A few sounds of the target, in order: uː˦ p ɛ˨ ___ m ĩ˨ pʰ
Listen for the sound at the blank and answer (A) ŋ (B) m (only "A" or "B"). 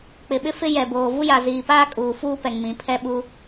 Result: A